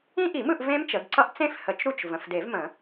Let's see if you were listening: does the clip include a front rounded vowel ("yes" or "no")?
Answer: no